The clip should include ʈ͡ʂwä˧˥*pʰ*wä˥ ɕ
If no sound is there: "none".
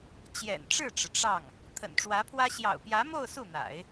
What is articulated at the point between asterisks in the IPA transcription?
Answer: pʰ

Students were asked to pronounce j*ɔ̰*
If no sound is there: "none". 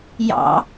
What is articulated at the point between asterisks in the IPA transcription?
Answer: ɑ̰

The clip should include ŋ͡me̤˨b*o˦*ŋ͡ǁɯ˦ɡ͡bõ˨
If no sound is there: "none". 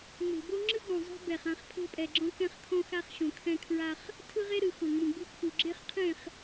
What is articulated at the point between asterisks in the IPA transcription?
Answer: o˦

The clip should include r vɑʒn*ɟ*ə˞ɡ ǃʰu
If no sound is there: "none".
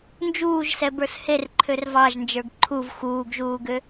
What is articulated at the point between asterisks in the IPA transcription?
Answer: d͡ʒ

